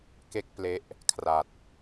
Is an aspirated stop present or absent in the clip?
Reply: present